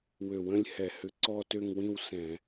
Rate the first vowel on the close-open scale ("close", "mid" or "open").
mid